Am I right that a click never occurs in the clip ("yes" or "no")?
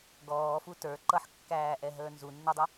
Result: no